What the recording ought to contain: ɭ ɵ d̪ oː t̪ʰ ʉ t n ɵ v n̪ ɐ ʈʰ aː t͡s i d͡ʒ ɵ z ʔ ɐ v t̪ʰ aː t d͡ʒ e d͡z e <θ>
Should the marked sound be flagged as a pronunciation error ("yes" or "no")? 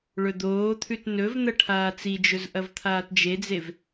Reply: yes